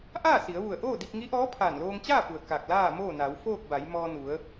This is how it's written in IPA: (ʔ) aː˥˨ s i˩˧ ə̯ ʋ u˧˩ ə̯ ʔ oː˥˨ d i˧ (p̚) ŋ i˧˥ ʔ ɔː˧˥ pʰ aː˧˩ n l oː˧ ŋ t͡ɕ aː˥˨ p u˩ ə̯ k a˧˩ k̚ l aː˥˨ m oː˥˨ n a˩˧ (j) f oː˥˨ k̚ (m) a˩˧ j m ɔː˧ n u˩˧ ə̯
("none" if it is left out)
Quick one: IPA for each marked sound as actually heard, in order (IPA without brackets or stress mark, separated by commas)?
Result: ʔ, p̚, w, b